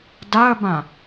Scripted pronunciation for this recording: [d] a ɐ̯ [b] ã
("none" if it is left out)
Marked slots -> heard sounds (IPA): d, b

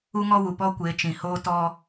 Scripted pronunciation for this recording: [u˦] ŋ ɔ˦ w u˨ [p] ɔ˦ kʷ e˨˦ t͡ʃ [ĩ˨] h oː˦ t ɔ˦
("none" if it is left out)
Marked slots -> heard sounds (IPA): u˦, p, ĩ˨

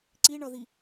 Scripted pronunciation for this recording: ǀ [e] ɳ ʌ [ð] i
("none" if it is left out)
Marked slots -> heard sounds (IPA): i, ð

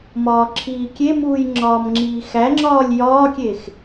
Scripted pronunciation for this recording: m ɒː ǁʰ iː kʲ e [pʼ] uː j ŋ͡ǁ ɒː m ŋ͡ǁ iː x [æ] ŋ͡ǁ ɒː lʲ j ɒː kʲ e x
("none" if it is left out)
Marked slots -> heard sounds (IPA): m, æ

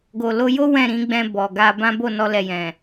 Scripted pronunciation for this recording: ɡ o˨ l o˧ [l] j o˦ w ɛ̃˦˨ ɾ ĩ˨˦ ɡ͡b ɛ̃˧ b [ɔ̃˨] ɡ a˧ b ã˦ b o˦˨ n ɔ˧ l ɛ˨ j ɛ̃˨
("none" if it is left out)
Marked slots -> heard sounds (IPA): none, ɔ˨

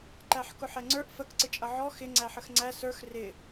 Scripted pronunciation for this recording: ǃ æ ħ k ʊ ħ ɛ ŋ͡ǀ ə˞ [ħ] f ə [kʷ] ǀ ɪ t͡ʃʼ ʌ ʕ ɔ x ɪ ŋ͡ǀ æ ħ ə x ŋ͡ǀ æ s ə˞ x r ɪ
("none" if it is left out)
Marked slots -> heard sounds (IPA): ʔ, k

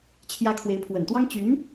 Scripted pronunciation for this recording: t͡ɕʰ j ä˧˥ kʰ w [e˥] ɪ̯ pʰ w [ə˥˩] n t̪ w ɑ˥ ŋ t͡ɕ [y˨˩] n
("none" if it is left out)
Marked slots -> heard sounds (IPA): e˧˥, ə˨˩, y˧˥

